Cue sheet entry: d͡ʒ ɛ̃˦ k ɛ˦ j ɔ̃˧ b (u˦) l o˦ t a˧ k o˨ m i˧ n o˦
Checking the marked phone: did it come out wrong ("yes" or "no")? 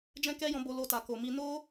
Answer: yes